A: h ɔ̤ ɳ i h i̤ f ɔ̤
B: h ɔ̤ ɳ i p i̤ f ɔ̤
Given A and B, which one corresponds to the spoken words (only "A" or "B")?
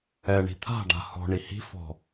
A